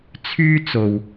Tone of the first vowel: high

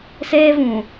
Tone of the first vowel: high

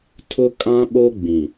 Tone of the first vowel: high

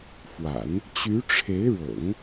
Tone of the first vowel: low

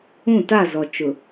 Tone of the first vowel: falling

